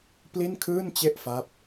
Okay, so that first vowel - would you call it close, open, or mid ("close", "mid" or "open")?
close